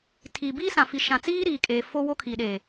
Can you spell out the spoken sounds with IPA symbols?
tʰi˨ biː˦sã˨fi˨ ʃã˨t͡siː˦ ɾiː˨kʼeː˨ fo˦ wo˦kʰi˨ɗeː˨

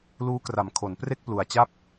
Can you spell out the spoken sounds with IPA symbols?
luː˦˥kra˨˩mkʰo˩˦npre˥˩k̚ plu˨˩a̯t͡ɕa˦˥p̚

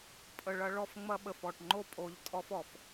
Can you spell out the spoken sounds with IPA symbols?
pʼə˨ɭɐ˧ɭɔ˧f ŋ͡mɐ˦ɓə˨fɔ˨ʈ ŋ͡ǃo˦pʼo˨˦ʎtʼɔ˦f ɔ˨f

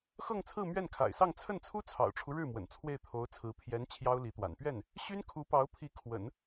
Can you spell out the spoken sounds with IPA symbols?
xɤ˥˧ŋt͡sʰɹ̩˥˧ mɥɛ˥˩nkʰa̰˨˩ɪ̯sɑ˥˧ŋ t͡sʰə˥˩nt͡sʰu˥ t͡sʰɑ̰˨˩ʊ̯ʈ͡ʂʰu˦ ɻɻ̩˥˩mwə̰˨˩n t͡sʰwe˥˩ɪ̯t̪ʰo˧˥ʊ̯t͡sʰɹ̩˧˥ pʰjɛ˧˥n t͡ɕʰjɑ˥ʊ̯li˧˥t̪wa̰˨˩n pɥɛ˥˩n | ɕy˥nkʰu˧˥pɑ˧˥ʊ̯pʰi˧˥ kʰwə̰˨˩˦n

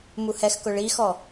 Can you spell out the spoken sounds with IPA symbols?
muhɛxkʊ ɭixɔ

